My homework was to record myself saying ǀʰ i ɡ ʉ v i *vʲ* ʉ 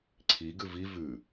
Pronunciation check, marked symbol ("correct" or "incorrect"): incorrect